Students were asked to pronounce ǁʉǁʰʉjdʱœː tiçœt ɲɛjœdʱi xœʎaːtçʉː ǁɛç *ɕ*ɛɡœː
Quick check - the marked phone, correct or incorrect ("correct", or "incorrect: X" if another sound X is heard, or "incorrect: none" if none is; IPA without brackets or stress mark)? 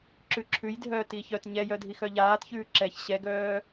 correct